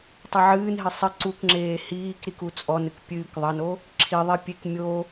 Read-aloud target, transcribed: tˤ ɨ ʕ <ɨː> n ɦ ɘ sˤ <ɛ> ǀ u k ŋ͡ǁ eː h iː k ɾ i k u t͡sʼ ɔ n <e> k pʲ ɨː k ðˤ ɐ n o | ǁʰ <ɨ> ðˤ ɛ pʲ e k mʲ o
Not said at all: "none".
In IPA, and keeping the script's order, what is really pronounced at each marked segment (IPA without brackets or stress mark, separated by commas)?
ɨː, ɘ, ɨ, i